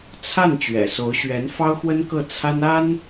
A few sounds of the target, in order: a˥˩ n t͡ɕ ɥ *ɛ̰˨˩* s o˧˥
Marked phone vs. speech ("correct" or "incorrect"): correct